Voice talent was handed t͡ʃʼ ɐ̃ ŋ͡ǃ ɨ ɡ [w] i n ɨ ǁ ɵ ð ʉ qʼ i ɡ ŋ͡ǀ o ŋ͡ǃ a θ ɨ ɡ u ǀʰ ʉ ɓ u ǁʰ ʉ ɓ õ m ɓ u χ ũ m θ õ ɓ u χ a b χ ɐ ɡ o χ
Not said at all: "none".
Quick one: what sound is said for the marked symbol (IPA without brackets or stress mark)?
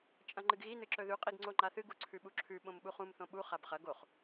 ɣ